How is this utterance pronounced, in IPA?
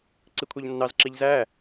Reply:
ǀ i kʷʰ æ ʎ nː ɑ z ǁ i ʎ z æ

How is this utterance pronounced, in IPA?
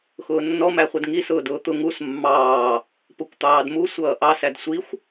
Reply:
x ʊː nː ɔ m æ χʷ ʌ d ŋ i s ʊː d ʊː t̪ ʊ ŋ u s mː ɑː | p ʊ kʷ t̪ ɑː d m u sʷ ʌː ʔ ɑ s æ d sʷ i xʷ

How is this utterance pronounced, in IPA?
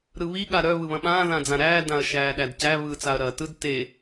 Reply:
ɾ ɯ β i ɠ a ɾ œ β ɯ β ɐ̃ ɓ ãː ð ã d͡z ã ɾ æː d ã ɐ̯ ʃ æː ɗ æ d c æ β ɯː t͡s a ɐ̯ ɾ ɐː t ɯ d t e

